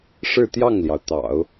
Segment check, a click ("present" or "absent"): absent